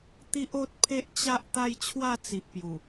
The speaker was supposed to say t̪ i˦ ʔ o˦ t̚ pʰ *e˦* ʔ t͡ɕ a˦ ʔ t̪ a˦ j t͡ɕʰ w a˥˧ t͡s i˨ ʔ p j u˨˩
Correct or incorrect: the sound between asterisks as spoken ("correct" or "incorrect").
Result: correct